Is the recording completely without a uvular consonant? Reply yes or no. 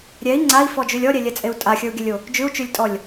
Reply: yes